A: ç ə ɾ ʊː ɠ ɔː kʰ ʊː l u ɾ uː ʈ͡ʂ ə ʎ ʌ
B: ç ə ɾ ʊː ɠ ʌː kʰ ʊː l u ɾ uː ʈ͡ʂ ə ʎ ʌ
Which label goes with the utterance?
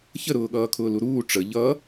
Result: B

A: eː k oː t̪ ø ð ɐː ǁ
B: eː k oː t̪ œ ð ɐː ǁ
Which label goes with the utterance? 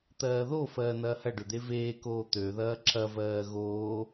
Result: A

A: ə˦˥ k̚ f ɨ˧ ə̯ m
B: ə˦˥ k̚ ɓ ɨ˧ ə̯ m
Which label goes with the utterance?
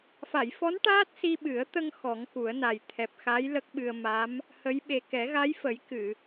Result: B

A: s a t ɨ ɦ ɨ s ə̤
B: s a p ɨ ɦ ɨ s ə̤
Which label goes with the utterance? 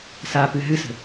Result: B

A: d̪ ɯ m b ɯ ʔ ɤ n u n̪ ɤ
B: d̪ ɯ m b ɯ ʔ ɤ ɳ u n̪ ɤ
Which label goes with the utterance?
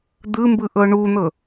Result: B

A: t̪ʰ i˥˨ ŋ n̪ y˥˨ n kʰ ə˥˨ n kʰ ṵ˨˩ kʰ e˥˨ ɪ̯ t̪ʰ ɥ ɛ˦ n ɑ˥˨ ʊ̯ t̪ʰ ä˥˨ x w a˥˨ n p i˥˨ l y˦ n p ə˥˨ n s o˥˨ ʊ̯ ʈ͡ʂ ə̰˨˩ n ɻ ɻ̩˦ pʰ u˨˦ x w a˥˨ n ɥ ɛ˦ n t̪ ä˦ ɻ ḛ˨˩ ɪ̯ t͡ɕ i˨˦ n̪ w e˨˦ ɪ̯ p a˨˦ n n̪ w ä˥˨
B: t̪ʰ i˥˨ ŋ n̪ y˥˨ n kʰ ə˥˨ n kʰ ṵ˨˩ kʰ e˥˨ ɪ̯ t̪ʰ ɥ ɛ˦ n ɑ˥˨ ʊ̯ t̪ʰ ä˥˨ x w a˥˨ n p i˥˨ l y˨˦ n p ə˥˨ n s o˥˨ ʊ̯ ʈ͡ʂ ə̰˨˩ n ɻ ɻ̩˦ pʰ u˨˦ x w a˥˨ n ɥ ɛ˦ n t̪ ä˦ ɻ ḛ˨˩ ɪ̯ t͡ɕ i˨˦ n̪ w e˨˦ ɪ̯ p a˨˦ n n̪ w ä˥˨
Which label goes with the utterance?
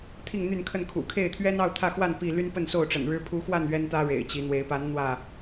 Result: A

